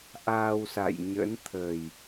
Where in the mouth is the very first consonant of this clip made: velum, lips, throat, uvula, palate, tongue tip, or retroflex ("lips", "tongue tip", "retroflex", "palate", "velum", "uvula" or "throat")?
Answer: throat